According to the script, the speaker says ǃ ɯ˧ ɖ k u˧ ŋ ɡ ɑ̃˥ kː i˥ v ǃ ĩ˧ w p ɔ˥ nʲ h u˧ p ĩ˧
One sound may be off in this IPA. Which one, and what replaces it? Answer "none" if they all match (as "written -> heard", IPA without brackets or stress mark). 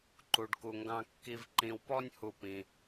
ɯ˧ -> u˧